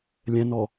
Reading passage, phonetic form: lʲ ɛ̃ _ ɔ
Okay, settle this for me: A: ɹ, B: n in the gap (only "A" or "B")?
B